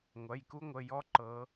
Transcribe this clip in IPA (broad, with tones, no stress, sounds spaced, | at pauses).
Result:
ŋʷ ɐ˩˧˩ j k u˥ ŋʷ ə˩˧˩ j ɔ˥ ǃ ɤ˩˧